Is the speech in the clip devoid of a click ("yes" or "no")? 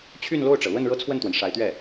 yes